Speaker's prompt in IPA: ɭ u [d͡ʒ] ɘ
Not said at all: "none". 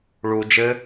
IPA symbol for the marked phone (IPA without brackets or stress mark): d͡ʒ